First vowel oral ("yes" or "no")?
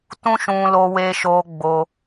no